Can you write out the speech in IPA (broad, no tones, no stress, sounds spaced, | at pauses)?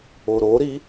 o ɾ o ɾ i